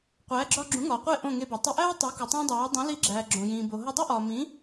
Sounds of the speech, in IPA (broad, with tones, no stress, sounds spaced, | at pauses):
qʷ æː˩˥ ɡ͡ǁ ɒː˧ ɡ͡ǁ ũ˩˥ ŋ ɒː˩ qʷ e˥˩ ʔ õ˥˩ ŋ e˧ b ɒ˩ tˤ i˧ ʔ æː˥ tˤ e˩˥ k u˩ tˤ æ̃˥ dˤ æː˩˥ dˤ ũ˩˥ l i˧ ɡ͡ǁ æː˩ ɡ͡ǁ õ˩ j ĩː˩ b o˩ ɦ o˧ dˤ u˥ ʔ ɒː˩ m ĩ˩˥